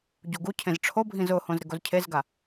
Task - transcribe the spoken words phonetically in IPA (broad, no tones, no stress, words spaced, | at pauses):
ɟuɡucʰẽz ʈ͡ʂʰobʱĩz ʊhõz ɾɪɡozcʰezɡa